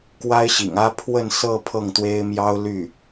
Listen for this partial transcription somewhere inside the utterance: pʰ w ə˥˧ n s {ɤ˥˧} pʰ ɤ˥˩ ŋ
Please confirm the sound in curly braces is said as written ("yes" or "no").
yes